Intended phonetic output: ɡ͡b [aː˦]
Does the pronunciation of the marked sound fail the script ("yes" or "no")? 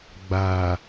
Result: yes